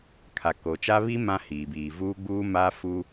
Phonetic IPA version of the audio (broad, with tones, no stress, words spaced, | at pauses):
kʰa˨ko˨t͡ʃa˦ βi˦ mã˦ hiː˨biː˨ vuː˦ɡ͡buː˦ maː˦fu˦